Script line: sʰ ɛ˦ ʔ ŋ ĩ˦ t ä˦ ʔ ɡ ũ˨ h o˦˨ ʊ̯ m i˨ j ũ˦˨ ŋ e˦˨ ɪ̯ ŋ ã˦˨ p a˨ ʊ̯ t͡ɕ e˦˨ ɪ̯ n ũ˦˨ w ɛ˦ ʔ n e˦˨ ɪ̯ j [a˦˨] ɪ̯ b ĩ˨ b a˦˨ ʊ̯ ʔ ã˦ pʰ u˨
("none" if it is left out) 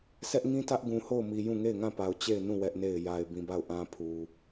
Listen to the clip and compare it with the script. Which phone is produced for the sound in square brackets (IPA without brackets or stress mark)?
a˨